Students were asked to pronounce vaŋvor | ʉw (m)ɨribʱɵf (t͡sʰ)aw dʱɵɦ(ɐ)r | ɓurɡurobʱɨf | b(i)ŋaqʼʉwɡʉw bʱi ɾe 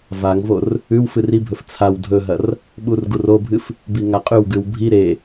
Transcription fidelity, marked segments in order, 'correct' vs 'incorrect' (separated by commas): incorrect, correct, correct, correct